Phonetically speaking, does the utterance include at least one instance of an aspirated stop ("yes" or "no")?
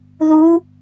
no